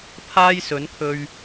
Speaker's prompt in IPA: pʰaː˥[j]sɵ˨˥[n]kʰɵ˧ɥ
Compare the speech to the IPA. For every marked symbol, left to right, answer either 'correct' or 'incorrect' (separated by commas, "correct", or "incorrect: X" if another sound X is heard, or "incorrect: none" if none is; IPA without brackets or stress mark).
correct, correct